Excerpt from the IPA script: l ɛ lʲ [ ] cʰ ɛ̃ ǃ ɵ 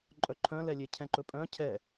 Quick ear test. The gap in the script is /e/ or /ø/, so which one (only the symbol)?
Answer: e